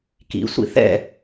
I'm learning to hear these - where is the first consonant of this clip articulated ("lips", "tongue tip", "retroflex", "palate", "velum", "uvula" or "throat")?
velum